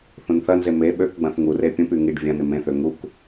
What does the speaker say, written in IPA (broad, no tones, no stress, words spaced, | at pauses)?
θũnθɐnze me ɓøkɡ͡bɐ̃θ ŋure pʲũpy ŋiɖ vʲɐ̃nɪ mẽθø ŋuk